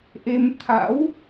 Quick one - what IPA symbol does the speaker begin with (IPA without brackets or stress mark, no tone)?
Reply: ʔ